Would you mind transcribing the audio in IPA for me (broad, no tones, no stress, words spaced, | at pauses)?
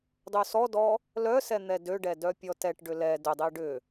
dˤøsɔdɔ | lœsɛ n̪ɛdøɖɛ dœpʲɔtɛʈɖʏ lɛ dʏdˤi ɖʏ